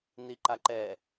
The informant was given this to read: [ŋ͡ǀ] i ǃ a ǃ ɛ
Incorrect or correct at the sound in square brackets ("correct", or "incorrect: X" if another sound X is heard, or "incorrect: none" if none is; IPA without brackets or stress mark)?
incorrect: n